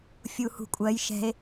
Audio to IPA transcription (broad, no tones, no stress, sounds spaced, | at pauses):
fʲ u h ṳ kʷʼ ɜ j ʃ ɛ̤ e̯